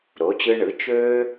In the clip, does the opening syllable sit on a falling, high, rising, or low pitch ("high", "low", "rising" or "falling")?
rising